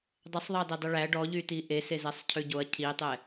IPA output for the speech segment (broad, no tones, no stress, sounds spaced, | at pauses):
dˤ ɛ sˤ ðˤ ɑ d ɛ dˤ ʉ ɭ æ ɖ ɔ ʎ y t i ʔ e s e z ɛ sˤ cʰ ʉ ɟ o ɐ̯ cʰ i tˤ ɛ